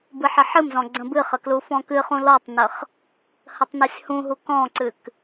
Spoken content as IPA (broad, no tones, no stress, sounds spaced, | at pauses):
b ɨ ħ ə ħ ɨ m z ɔ̃ ɡ͡ǀ ə̃ b ɨ χ ə k l u f ɔ̃ k ɨ χ ũ l ɔ tˤ n ə χ | h ə tˤ n ɔ sʲ h ũ ɦ u k ɔ̃ ǀ ɨ k